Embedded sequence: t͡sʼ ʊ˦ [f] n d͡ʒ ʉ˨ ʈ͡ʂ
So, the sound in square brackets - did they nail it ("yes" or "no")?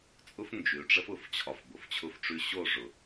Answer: yes